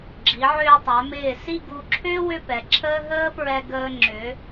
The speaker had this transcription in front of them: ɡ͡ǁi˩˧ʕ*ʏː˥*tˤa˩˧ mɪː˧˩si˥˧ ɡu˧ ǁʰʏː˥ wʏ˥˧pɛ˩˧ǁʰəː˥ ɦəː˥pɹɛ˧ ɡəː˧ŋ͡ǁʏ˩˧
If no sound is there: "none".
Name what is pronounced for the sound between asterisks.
ʏː˧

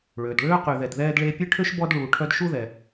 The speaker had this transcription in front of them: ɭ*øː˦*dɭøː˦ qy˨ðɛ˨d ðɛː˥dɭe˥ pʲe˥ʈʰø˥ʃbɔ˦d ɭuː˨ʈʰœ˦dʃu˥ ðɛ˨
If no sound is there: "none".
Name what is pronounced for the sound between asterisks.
øː˩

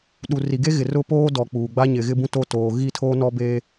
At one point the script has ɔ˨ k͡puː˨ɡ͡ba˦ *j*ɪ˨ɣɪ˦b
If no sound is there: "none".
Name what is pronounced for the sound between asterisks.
ɲ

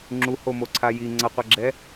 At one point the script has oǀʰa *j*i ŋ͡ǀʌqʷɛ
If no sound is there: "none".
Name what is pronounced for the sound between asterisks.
j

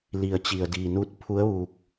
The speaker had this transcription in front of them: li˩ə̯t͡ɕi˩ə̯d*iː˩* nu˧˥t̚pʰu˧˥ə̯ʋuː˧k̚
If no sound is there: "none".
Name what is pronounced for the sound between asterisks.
iː˩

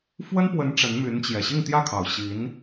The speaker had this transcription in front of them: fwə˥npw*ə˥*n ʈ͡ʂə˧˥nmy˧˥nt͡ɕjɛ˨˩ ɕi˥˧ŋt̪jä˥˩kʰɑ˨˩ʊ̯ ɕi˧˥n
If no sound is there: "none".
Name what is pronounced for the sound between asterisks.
ə˧˥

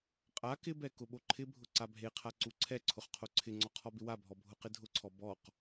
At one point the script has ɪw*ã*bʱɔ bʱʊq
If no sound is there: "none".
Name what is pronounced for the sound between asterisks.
a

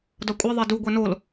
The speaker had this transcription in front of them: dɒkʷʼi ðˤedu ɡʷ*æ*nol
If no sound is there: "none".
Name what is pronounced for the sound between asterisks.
æ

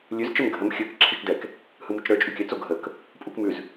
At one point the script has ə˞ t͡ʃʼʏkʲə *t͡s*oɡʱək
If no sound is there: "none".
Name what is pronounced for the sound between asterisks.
t͡s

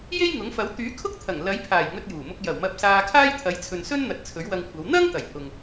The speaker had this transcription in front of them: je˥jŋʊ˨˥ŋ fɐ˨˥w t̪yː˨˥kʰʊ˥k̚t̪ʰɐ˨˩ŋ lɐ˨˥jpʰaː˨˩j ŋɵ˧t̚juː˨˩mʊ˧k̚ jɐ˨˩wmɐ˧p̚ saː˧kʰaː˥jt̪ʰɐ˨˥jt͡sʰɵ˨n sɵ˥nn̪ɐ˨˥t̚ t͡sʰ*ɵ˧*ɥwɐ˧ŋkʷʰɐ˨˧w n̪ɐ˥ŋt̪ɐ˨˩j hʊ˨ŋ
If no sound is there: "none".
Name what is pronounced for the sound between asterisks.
ɵ˨˥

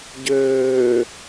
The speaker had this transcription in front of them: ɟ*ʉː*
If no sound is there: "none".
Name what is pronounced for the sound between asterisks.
øː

